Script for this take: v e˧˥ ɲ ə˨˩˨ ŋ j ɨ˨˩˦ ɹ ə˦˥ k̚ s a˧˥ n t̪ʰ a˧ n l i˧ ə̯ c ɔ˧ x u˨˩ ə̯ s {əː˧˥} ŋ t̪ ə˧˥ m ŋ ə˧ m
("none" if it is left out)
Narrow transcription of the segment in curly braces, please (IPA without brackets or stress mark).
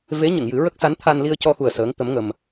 əː˧˥